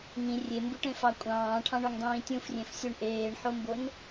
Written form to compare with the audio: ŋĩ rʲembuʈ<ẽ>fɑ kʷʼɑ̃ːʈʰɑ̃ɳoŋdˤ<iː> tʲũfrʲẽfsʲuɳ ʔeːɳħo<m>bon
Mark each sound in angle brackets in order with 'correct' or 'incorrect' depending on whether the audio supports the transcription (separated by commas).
correct, incorrect, correct